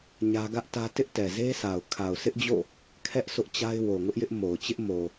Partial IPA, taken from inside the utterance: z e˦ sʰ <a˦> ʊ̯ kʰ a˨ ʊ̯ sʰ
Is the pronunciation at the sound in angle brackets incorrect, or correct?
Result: incorrect